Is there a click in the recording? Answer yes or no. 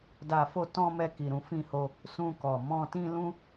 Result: no